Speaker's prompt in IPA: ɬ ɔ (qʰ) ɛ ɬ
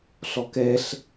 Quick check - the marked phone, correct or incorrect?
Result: incorrect: k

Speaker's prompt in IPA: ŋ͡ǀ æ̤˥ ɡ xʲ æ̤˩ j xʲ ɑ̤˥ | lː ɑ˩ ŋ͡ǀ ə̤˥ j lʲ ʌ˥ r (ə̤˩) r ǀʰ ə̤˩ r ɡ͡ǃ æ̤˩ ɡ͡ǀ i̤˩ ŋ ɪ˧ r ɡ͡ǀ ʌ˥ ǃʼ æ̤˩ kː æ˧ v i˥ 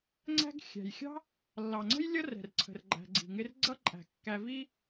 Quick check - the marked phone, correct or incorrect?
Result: incorrect: ɛ̤˩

